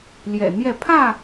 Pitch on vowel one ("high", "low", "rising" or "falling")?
low